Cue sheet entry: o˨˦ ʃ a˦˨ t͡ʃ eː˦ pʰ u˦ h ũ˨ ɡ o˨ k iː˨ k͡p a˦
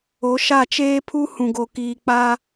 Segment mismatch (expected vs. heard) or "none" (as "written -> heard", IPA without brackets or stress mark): none